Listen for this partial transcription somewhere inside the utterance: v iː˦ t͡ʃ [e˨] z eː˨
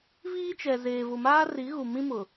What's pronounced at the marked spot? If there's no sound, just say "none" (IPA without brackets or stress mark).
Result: ɛ˨